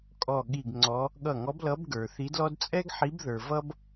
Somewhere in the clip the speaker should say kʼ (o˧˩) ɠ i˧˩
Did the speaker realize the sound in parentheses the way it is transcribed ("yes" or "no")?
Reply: no